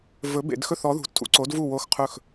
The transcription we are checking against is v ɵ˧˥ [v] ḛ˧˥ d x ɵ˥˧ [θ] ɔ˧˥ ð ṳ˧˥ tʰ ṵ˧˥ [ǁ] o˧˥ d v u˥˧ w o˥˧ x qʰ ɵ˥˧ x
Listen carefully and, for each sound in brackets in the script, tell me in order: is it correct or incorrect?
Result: incorrect: b, correct, incorrect: ǀ

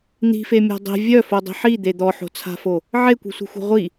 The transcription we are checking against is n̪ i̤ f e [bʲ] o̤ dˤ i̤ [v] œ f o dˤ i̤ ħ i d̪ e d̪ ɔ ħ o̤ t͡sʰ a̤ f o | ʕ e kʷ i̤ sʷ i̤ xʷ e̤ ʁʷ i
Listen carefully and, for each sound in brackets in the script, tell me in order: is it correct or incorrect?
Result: incorrect: mʲ, incorrect: vʲ

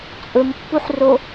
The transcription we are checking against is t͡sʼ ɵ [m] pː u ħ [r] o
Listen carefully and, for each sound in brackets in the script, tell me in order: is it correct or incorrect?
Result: correct, correct

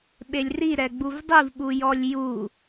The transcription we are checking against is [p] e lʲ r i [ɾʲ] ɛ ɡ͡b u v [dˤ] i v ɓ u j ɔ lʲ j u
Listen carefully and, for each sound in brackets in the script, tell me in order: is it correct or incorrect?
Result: incorrect: ɓ, incorrect: ɾ, correct

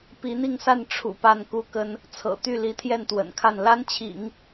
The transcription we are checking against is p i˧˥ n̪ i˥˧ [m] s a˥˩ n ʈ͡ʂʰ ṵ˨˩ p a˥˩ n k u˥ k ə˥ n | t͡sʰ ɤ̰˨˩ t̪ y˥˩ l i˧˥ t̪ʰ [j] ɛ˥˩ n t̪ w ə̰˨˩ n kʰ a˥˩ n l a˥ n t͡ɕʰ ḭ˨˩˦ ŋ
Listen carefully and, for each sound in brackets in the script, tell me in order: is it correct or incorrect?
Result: incorrect: ŋ, correct

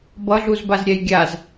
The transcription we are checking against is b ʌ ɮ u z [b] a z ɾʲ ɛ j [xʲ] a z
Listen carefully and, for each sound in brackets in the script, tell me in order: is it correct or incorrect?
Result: correct, incorrect: ɡʲ

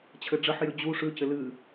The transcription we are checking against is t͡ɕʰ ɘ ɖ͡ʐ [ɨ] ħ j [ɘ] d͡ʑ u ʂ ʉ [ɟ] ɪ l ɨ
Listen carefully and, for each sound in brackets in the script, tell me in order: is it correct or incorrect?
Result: incorrect: ə, incorrect: ʉ, incorrect: c

